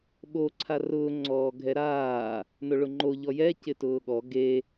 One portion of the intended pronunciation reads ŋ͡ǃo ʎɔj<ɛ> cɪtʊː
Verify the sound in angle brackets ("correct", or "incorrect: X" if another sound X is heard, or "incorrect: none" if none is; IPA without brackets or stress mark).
correct